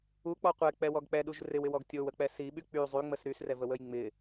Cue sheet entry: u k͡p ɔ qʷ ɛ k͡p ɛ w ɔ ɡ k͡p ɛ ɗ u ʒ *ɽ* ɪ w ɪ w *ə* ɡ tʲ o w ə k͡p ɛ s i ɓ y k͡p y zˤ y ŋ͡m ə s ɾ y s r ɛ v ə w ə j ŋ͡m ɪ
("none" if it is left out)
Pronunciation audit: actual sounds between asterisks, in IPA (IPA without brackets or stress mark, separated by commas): r, ɔ